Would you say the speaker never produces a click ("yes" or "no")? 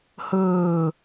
yes